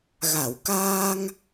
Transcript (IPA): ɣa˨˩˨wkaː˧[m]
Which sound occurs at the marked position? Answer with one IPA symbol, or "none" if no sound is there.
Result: ŋ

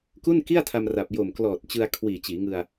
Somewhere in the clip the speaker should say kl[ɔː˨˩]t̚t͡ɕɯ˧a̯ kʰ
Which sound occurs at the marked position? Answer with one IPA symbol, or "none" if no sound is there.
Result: ɔː˨˩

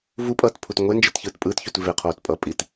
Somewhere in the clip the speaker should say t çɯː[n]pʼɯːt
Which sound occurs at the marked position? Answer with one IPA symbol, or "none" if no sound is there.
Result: t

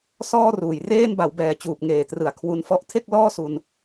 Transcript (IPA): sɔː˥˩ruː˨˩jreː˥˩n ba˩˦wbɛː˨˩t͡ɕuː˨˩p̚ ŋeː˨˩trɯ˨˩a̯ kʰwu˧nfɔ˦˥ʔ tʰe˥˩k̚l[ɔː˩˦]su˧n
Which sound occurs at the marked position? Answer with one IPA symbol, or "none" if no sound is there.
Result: ɔː˥˩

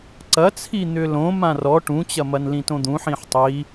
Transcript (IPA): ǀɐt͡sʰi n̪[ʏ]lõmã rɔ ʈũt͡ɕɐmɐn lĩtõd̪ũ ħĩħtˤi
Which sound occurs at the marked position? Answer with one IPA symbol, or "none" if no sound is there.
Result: ʏ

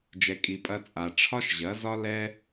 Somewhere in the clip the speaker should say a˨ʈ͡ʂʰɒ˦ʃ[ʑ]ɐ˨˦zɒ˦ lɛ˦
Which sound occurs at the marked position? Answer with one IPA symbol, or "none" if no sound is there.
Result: ʑ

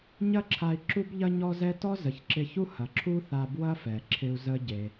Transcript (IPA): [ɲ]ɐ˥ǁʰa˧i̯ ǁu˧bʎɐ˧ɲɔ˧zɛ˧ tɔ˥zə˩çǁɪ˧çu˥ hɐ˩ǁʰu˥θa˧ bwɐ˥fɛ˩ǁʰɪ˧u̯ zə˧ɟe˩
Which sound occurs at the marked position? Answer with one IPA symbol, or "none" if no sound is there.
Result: ɲ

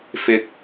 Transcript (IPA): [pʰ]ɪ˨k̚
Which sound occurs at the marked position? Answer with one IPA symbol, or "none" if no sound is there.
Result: f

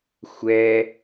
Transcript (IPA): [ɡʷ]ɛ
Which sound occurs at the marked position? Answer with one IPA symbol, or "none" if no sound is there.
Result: xʷ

